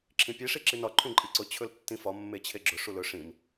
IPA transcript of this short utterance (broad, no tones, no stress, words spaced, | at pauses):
ǁʰĩpʲe ʂiǁinɒ ǃʰũǃʼiǀʊ t͡ɕʰɵltːĩfɒ mːet͡ɕʰeɡ͡ǁʊ ʂulɵ ʂĩm